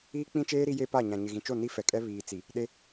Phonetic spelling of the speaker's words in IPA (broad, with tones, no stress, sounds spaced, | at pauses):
iː˦ k͡p ĩ˦ t͡ʃ eː˦ ɾ i˦ j e˦ p a˦˨ ɲ ã˨ ɲ ɪ˨ ɣ ĩ˨ t͡ʃ o˦˨ n i˦ f ɛ˨ kʼ ɛ˦ β iː˨ t͡s i˨ | ɗ e˦